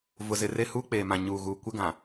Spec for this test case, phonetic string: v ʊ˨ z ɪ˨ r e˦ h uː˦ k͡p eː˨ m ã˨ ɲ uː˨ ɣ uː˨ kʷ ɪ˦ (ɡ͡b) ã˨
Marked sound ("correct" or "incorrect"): incorrect